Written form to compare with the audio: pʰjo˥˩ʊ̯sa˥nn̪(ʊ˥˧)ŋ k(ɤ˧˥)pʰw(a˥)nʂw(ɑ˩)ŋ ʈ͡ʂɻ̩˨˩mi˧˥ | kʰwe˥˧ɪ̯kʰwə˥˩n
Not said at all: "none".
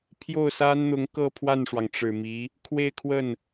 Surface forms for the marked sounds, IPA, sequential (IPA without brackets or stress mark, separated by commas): ʊ˧˥, ɤ˥˧, a˥˩, ɑ˩